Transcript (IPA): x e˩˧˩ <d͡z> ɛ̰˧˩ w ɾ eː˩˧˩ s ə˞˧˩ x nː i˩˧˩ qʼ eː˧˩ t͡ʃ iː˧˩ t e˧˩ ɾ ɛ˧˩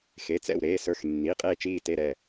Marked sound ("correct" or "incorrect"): incorrect